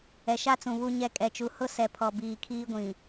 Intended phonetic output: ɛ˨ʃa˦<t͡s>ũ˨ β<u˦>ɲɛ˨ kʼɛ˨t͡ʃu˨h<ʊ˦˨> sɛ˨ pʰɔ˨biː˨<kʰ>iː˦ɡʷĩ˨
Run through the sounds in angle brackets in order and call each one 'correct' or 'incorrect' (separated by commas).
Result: correct, incorrect, correct, correct